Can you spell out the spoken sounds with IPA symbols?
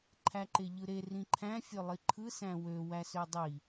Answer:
ǃʰ æ ǃ e ʎ ɯ ɾ e r ĩ ǃʰ æ̃ fʲ ø lˠ i ǃʰ ɯ s æ̃ w ø w æ s ø dˤ i

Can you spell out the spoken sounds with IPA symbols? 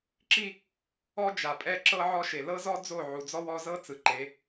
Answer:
ǁ i˦ | ɔ˦ d͡ʒ a˨ pʼ ɛ˦ ǁ ɤ˦ ʕ ɔ˦ ʃ e˨ l ɤ˦ z ɔ˦ d͡z o˦˨ ʕ u˨ d͡z ɔ˦ w ɔ˦ z ɤ˦ t͡s ɯ˨ ǃ e˨˦

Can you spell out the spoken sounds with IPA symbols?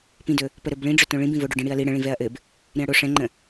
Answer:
p ĩ d ɵ | p ə ɾ ɵ b ɭ ĩ ɖ͡ʐ ɵ t õ ɭ ĩ b ĩ v o ɖ ɵ ɖ ĩ ɽ i ɐ̯ l i ɽ ə̃ ɭ ĩ v ɛ ɐ̯ ʔ ɘ b | ɾ ĩ ɐ̯ ɽ o ʂ ɛ̃ ŋ͡ǃ ə̃

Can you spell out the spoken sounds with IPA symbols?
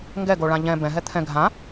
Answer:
ŋ ɡ ɛ ɡ o ɭ ã ʎ ɛ̃ b ɛ̃ ɦ ɛ t̪ʰ ɛ̃ ɡʱ ã

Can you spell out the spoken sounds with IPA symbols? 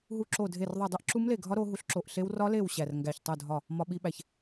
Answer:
ɦ u˦˥ ǁ o˦˨ dʱ e˦˨ r ðˤ i˦˨ dˤ i˦˥ ʔ ǁ u˦˥ m l e˦˨ ɡʱ ɒ˦˥ ɾ o˦˥ ɦ u˦˥ ɬ ǁ o˦˨ ʔ ɬ e˦˥ w r ɒ˦˥ l e˦˨ w ɕ æ˦˨ r ŋ ɡ æ˦˨ ç tˤ o˦˨ dʱ ɒ˦˨ | m ɒ˦˥ ɓ i˦˥ ɓ æ˦˨ ç

